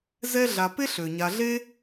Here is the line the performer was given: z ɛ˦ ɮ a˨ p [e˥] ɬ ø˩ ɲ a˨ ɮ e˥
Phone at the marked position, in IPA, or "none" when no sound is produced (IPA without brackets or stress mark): e˥